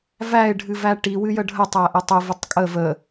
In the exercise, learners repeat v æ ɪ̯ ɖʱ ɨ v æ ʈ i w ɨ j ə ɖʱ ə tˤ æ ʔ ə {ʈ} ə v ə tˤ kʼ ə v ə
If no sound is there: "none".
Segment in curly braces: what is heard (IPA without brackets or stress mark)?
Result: tˤ